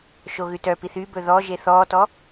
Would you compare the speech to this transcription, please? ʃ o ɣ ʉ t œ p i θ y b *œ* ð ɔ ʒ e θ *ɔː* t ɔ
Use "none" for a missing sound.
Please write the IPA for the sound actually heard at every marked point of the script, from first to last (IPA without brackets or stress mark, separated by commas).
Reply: ɵ, ɔː